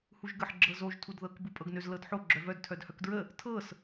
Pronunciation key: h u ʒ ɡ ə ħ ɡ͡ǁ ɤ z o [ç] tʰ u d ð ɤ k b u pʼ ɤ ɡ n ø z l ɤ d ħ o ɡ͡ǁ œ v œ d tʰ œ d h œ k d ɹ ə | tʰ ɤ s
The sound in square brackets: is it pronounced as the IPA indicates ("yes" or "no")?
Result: no